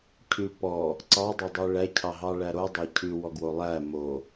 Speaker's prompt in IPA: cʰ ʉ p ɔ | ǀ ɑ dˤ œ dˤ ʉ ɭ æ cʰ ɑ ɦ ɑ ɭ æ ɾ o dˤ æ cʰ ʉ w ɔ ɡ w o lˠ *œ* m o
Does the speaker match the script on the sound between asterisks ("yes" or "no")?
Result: no